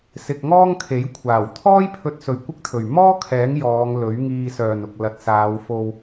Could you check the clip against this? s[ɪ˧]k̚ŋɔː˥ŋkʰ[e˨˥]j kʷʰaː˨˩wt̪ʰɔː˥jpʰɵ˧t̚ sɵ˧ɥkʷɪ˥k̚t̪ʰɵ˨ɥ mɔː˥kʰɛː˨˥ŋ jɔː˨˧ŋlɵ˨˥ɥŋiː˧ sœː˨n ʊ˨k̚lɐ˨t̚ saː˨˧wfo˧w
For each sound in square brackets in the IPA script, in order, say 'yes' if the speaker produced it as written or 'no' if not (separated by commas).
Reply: yes, yes